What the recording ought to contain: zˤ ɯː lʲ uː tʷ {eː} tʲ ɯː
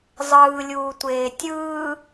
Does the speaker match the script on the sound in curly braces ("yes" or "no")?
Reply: yes